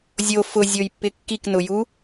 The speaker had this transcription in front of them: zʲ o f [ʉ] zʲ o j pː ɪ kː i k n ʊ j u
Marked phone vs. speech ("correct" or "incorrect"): incorrect